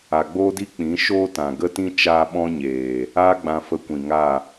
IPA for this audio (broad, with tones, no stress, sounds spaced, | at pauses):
a˨ ɡ͡b oː˦ d i˦ k͡p ĩ˨˦ ʃ oː˦ t ã˨ ɡ ə˦ t ĩ˦ t͡ʃ aː˦ ɓ ɔ̃˦ ɲ eː˨ | aː˦ ɡ͡b ã˧ f ə˧ kʷ ĩ˨ ŋ a˦˨